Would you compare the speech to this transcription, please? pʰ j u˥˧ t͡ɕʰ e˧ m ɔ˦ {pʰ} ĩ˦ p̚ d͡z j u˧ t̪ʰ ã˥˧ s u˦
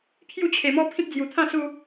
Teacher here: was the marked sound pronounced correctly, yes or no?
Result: yes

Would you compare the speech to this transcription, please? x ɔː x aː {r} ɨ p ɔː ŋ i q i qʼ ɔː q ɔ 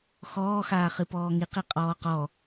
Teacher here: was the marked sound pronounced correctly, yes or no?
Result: no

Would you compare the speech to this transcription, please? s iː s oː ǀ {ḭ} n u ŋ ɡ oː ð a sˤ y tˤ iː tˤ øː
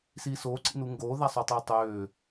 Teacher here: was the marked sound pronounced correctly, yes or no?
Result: yes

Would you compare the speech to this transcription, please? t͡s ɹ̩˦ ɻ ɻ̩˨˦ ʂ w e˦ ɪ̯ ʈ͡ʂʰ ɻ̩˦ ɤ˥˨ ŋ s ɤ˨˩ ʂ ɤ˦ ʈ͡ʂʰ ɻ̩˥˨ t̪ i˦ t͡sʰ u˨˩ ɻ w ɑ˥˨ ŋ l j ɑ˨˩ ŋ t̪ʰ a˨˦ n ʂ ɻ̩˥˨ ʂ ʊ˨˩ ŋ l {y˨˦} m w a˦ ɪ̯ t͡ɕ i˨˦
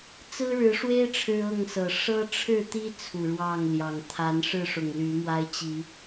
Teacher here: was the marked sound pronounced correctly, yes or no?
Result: yes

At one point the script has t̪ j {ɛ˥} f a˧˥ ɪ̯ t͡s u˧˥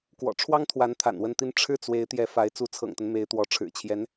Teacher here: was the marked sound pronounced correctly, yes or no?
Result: no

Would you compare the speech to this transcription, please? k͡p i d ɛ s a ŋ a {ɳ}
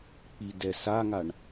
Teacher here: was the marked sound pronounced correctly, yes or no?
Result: yes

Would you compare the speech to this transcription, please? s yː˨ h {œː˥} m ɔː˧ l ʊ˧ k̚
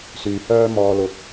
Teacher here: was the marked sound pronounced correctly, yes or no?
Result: yes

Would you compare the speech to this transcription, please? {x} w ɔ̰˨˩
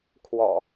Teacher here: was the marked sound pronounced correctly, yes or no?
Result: no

